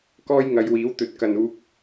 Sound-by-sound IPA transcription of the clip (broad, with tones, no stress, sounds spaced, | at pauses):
k ɔː˥ j ŋ ɐ˨˧ j w iː˨˥ w t̪ ɵ˨ t̚ k ɐ˨ n uː˧ k̚